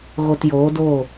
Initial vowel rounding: rounded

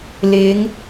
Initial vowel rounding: unrounded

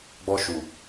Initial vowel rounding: rounded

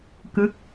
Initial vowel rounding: unrounded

